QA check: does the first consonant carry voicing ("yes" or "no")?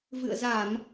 yes